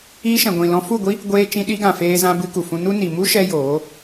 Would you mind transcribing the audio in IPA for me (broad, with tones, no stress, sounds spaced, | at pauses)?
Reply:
iː˧ ʃ ɛ̃˨ ɡʷ ĩ˨ l ɔ̃˧ f u˦˨ ɡʷ i˦ | ɡʷ eː˧ t͡ʃ ĩ˧ ɗ i˧ ɡ ã˨ f eː˧ z ã˧ b ɨ˧ k u˨ f ũ˧ n u˦ n i˨ m u˦ ʃ ɛ˧ j oː˨˦